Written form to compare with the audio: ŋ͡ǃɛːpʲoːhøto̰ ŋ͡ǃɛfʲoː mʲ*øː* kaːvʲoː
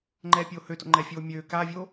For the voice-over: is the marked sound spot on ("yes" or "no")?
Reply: yes